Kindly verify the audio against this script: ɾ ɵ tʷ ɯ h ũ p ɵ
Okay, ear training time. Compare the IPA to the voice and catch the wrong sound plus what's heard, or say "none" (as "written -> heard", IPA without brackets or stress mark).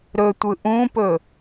h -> ʔ